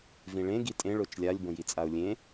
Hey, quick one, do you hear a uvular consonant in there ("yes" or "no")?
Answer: no